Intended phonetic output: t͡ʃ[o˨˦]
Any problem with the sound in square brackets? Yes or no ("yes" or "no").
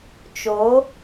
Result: no